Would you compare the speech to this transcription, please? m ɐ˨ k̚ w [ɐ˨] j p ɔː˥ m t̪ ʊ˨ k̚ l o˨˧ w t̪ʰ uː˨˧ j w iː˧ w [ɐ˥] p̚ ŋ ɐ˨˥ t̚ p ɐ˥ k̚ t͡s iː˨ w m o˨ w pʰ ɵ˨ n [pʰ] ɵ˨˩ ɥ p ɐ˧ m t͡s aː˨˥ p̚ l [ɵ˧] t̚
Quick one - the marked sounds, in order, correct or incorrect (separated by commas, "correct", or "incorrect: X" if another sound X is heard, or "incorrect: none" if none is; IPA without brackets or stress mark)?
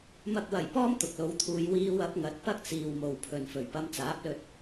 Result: incorrect: ɐ˨˩, incorrect: ɐ˨˥, incorrect: f, correct